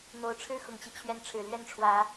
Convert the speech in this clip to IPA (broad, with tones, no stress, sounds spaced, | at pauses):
n̪ o˨˦ ʊ̯ ʈ͡ʂʰ ɻ̩˦ x ʊ˨˩ ŋ t͡ɕ i˦ t͡ɕʰ ɥ ɛ˨˦ n ʈ͡ʂʰ ɻ̩˨˩ l ɥ ɛ˥˨ n ʈ͡ʂʰ w ä˨˦